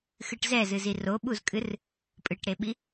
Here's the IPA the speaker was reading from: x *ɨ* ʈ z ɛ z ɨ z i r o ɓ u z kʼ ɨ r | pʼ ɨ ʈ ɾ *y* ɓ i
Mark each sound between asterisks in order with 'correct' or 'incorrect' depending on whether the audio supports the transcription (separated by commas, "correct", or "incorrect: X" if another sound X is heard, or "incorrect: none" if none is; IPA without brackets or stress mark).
correct, incorrect: e